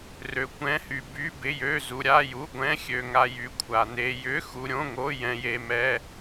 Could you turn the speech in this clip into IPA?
r ø˧ kʷ ɛ̃˧˥˧ h y˧ b y˧˥˧ b ɪ˧˥˧ j ø˧˥˧ z u˧ ɾʲ a˧˥˧ j u˧˥˧ ɡʷ ɛ̃˧˥˧ xʲ ø˧ ŋ a˧ j y˧ kʷʰ a˧ n e˧ j ʏ˧˥˧ x u˧ ɾʲ õ˧˥˧ ŋ o˧˥˧ j ɛ̃˧ j e˧ m ɛ˧˥˧

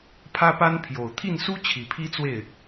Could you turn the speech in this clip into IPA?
pʰ ä˥ p a˥ n pʰ j o˨˩ ʊ̯ t̪ʰ i˥˩ n s u˥ t͡ɕʰ i˨˩ pʰ i˥ t͡s w e˥˩ ɪ̯

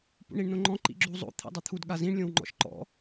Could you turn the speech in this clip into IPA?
p ṵ ɳ i ɳ n õ ŋ͡ǃ ɔ̃ ǃ ḭ ɡ͡ǁ u zˤ o̰ t̪ʰ ḭ dˤ ʌ t̪ʰ u d ɠ a z ĩ ɳ lʲ õ w ŋ͡ǃ ɔ̰ ʃ ǃ ɔ̰

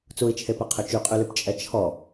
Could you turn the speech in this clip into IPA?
t͡s u i̯ t͡ʃʰ e p ɛ qʰ ø t͡ʃ y qʼ y l y p t͡ʃʼ ɛ t͡ʃʰ ɔ

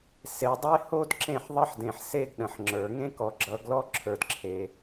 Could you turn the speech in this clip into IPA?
s e˨ dˤ e˦ h o˦ d ǁ ẽ˦˨ ħ ðˤ ʌ˦ ħ d ẽ˨ ħ s e˦ ɡ ɗ ə̃˨ ħ ŋ͡ǁ ə˞˨ ŋ ẽ˦ k ɔ˨ ɡ͡ǁ ʌ˨˦ ɡ l ɔ˦ ǁʰ ə˞˦ d ǁʰ e˦

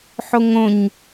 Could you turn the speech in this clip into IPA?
ħ o ŋ õ ɲ

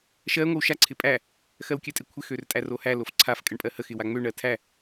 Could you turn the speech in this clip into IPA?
ʃ ɜ ŋʷ ə w ʃ a ǀʰ ɪ pʼ æ | x ɜ w kʲ ɜ tʼ ɪ kʷʰ ɪ x ø r tʼ æ r o h æ l o f ǀʰ a f kʼ ə ɳ pʼ ɜ h ə x ɪ w a ŋ͡m ø ɳ ɜ tʰ æ

